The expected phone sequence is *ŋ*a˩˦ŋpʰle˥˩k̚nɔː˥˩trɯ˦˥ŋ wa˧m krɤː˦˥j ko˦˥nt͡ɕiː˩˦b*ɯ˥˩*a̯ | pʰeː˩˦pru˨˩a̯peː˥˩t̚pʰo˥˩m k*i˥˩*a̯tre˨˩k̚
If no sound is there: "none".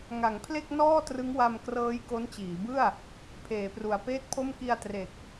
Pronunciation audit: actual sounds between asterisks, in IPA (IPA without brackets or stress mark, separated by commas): ŋ, ɯ˥˩, i˧